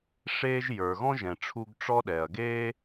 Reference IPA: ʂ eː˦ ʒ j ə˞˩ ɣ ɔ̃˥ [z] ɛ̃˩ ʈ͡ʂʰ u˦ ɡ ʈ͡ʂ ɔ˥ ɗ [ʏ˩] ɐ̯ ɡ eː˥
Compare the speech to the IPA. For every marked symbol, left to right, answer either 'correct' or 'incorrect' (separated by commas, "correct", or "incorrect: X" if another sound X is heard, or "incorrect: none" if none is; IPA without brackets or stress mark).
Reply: incorrect: ʒ, incorrect: ɛ˩